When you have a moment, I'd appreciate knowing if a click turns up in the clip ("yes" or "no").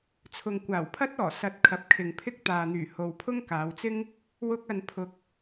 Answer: no